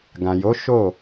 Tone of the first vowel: low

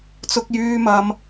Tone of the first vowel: high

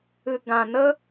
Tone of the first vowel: low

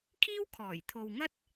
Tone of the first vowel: high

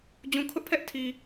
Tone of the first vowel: low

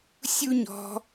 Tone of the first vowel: high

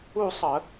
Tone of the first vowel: falling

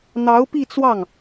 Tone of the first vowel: rising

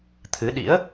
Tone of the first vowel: rising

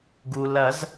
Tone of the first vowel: low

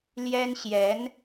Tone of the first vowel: high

